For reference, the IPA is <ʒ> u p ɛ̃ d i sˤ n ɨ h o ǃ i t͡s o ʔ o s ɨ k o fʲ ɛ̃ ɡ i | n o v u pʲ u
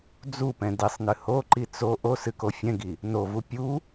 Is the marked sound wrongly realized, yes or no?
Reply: yes